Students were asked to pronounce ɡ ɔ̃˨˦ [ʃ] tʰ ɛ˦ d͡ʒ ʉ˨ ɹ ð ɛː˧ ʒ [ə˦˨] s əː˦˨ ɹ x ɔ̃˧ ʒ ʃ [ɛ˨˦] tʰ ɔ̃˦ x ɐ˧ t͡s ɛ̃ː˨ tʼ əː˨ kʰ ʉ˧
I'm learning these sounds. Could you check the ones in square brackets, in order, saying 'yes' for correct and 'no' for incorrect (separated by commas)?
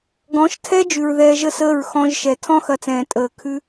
yes, yes, no